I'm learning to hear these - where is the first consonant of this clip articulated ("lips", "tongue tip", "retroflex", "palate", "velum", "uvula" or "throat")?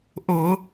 throat